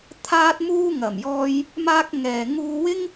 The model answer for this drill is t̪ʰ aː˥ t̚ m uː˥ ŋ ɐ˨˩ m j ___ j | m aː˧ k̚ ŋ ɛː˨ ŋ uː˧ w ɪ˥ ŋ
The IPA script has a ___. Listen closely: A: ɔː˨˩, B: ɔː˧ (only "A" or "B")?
B